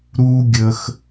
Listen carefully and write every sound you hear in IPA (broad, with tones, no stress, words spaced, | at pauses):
ɾu˦ɡʲə˧x